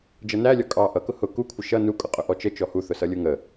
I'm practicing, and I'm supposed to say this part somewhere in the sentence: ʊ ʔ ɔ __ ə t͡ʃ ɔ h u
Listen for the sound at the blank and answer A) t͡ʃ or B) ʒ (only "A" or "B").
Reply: A